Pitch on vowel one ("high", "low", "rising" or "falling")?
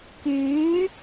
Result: rising